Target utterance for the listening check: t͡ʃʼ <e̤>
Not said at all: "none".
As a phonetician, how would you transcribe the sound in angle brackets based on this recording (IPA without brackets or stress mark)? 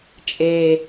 e